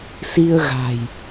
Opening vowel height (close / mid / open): close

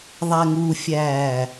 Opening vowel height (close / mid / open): open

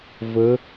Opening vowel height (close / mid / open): mid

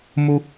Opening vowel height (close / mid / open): close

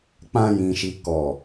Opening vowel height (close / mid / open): open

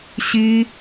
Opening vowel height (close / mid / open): close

